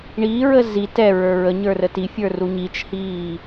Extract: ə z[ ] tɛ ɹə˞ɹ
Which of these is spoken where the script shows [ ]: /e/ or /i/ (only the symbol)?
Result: i